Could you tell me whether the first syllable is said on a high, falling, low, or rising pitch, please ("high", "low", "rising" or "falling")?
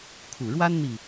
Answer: low